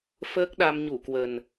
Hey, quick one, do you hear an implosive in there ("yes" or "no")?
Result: yes